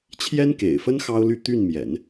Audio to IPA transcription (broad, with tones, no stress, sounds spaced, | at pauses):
t͡ɕʰ j ɛ˥ n k ḛ˨˩ ɪ̯ f ə˥ n x ɑ˥ ʊ̯ l y˥˧ t̪ y˥˩ n m j ɛ̰˨˩˦ n